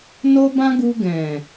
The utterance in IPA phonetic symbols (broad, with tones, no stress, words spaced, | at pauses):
no˦bã˦ɡu˧ ɡɛ̃˨